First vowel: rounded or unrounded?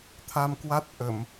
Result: unrounded